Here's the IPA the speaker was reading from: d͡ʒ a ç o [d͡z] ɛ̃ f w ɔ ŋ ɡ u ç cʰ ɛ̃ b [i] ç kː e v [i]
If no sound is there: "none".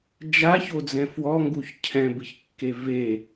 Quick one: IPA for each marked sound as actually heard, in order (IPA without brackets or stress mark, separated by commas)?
d͡z, ɨ, e